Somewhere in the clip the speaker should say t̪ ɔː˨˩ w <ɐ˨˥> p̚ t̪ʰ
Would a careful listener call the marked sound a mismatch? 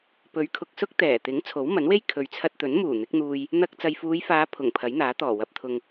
yes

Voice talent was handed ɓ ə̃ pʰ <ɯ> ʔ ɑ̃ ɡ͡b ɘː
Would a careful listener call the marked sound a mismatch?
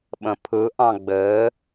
no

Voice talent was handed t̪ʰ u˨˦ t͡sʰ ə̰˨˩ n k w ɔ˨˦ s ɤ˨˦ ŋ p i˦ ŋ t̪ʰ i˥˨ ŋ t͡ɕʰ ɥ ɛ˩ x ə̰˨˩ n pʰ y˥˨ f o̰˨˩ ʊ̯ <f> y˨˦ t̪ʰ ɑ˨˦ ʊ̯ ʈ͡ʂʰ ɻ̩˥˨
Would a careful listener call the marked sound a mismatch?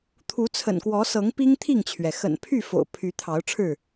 yes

